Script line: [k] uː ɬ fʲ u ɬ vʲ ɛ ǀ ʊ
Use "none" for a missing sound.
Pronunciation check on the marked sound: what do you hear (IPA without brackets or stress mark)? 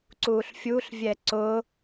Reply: ǀ